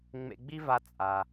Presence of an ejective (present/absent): present